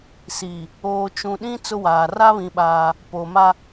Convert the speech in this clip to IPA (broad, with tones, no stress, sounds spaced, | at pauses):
s i˨ | oː˨ t͡ʃ ũ˨ ɗ ĩ˦ t͡s ʊ˦ w aː˨ r a˦ β ĩ˨ ɓ aː˦ | p oː˨ m a˦